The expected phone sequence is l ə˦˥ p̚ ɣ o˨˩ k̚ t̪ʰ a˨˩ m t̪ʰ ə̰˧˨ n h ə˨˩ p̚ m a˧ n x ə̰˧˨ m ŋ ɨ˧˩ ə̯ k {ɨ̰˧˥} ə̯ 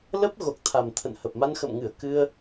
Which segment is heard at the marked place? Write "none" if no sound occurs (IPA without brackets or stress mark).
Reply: ɨ˧